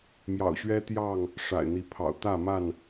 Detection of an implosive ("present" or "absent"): absent